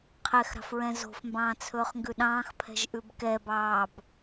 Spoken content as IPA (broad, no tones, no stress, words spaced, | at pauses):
qʰɛxɾɑ̤fɹɛ̃ zo̤fmbɑ̃ːt͡sʰɵːχŋɡʉ ɗɑ̃ːxpʰɛ̤ʒʔʉb kɛbɑːb